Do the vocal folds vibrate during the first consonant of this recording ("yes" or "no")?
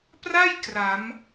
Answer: no